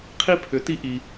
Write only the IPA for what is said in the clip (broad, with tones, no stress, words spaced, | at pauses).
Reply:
qʰi˧pʰʏ˩˧ti˧ ʔi˧